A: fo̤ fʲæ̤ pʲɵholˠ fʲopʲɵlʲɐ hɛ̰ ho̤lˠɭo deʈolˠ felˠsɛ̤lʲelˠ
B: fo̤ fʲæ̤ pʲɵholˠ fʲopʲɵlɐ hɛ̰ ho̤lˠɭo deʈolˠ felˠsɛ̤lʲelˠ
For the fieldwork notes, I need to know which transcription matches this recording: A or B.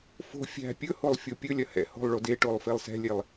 A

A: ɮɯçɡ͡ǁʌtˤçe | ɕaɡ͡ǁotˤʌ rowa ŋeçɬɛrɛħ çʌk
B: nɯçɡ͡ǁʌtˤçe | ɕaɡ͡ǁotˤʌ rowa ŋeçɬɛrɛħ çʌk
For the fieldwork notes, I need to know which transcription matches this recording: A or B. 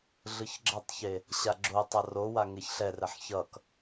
A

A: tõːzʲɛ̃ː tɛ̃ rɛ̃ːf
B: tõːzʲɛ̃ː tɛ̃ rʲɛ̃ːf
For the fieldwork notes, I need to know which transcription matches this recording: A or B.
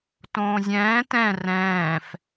A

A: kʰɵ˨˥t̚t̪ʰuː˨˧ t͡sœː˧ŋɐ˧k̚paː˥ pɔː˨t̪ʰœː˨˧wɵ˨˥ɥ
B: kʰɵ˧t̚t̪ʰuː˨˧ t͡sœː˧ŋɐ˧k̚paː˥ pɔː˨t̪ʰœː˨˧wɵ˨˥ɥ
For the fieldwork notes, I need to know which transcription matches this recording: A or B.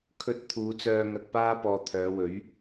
B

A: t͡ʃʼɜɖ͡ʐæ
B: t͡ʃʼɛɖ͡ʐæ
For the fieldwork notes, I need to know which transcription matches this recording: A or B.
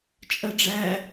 A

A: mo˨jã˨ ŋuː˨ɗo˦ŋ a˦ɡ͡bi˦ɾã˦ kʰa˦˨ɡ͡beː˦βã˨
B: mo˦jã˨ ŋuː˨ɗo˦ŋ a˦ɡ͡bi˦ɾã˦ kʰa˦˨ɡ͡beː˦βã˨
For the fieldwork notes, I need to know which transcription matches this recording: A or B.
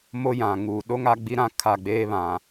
B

